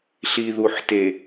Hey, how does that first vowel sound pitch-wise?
low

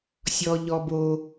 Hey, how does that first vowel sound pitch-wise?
low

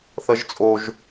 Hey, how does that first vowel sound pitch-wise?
high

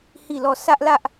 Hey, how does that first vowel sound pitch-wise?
falling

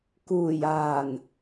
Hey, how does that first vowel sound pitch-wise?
low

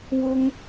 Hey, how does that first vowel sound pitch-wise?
high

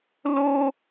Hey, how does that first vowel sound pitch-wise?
high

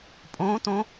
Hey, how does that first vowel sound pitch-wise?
rising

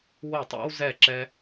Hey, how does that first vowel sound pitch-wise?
falling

